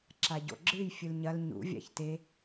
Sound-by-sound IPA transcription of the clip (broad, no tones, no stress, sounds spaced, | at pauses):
ǁ a ɟ o̰ ɡ͡ǁ ɨ j fʲ ɨ l ɲ ɐ l ɲ ṵ vʲ a̰ ç t e